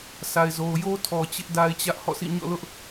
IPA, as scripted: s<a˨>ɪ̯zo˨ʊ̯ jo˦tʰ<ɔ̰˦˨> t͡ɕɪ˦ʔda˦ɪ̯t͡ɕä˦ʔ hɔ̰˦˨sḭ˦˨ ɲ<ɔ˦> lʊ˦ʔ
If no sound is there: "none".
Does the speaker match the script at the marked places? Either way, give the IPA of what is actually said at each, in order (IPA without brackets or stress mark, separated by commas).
a˨, ɔ˨, ɔ̰˦˨